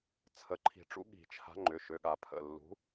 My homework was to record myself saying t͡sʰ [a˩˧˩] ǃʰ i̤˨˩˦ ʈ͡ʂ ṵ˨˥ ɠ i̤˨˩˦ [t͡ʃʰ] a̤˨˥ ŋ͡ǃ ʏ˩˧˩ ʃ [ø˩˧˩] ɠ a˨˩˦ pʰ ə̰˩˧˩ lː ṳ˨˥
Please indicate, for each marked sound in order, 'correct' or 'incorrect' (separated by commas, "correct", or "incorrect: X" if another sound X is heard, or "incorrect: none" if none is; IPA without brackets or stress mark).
incorrect: ə˩˧˩, correct, correct